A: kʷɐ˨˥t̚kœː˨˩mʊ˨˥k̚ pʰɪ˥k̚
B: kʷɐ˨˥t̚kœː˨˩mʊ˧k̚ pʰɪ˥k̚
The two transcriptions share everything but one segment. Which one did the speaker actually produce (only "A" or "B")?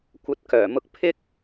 B